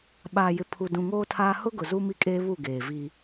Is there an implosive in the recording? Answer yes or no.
yes